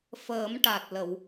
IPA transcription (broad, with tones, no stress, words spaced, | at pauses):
fəː˨˩˦mʈa˨˩t̚lə˨˩˨w